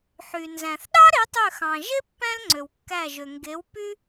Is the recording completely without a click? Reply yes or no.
no